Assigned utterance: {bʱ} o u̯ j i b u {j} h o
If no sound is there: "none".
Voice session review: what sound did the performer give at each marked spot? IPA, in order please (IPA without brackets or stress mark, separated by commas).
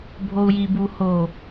bʱ, none